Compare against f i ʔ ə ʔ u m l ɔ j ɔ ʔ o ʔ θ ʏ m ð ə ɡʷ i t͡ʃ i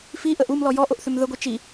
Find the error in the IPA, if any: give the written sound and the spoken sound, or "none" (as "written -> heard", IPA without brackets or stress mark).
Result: none